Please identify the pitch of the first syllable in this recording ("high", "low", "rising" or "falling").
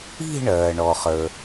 falling